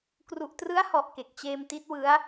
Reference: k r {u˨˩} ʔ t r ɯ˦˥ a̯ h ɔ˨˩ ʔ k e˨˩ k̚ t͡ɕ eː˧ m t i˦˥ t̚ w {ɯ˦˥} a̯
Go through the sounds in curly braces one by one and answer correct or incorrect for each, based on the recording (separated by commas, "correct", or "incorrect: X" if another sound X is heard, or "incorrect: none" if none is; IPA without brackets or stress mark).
correct, correct